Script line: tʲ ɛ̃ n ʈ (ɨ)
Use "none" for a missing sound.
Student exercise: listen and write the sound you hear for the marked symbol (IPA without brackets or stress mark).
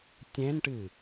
ɨ